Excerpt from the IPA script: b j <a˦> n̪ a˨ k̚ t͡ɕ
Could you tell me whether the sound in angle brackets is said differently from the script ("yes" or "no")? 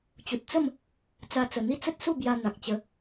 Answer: yes